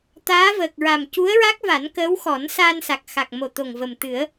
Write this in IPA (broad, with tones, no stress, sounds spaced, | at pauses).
t̪ aː˧˥ v əː˨˩ k̚ ɹ a˨˩ m c u˧˥ ə̯ ɹ a˦˥ k̚ v a˨˩˦ n k əː˧˥ w x ɔ˨˩˦ n s aː˧ n s a˨˩ k̚ x a˨˩ k̚ m o˨˩ t̪ o˨˩ ŋ v ə˨˩ m t̪ ɨ˨˩˦ ə̯